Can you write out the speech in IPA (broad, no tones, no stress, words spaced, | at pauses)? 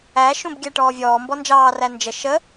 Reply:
æʃũb ɡʲæʈɔːvʲɔː mbɔnd͡ʒɑː rænd͡ʒə ʃə